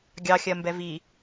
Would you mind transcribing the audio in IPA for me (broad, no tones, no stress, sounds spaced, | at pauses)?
ɡʲ ɑ xʲ ɜ m b ɛ v i